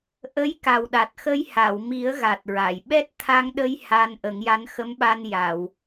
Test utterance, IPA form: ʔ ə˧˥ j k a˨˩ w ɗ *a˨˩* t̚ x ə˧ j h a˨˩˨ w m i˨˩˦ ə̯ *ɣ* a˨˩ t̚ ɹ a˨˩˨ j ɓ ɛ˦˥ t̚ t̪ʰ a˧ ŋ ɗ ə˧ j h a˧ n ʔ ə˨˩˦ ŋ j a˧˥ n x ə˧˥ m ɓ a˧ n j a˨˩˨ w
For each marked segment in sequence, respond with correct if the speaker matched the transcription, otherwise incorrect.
correct, correct

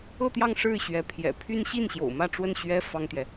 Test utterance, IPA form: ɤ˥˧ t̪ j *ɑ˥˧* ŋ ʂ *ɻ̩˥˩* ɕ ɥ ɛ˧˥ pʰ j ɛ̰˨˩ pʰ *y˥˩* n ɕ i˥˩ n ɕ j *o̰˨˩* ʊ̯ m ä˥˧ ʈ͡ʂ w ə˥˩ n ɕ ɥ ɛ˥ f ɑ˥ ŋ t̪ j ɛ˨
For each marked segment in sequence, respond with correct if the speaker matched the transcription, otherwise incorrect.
correct, correct, incorrect: y˥, correct

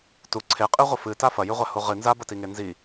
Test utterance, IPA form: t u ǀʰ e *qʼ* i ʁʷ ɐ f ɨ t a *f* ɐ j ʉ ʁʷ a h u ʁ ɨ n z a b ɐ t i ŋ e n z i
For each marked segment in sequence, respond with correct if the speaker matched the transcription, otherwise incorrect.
correct, correct

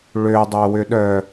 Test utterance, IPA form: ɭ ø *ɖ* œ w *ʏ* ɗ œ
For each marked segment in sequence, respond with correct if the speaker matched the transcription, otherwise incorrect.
incorrect: dˤ, correct

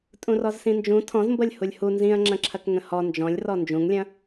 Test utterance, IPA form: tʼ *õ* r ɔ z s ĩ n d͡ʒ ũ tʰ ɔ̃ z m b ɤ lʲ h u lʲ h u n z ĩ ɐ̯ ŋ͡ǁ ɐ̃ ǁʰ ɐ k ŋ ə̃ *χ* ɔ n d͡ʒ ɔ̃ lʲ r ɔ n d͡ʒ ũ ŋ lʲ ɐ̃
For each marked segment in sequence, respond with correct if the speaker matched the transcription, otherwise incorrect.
incorrect: ũ, incorrect: h

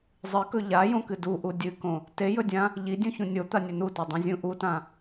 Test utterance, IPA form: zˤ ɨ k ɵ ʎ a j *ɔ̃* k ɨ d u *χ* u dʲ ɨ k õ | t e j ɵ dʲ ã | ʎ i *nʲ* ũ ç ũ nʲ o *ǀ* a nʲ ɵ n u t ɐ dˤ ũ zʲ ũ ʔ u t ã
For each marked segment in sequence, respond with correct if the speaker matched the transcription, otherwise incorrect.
incorrect: õ, incorrect: ʔ, incorrect: dʲ, incorrect: t̪

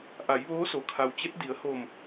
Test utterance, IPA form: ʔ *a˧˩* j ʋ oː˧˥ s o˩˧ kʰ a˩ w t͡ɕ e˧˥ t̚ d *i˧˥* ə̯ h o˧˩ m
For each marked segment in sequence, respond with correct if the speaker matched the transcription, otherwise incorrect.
incorrect: a˩˧, incorrect: i˩˧

